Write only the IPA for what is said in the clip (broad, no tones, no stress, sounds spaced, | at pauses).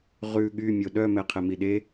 ʁ ʉ ɠ y mʲ o ɗ œ m ɛ qʰ ɛ m i ɗ e